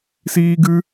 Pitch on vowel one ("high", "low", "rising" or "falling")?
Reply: high